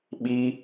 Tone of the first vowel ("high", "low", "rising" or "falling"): high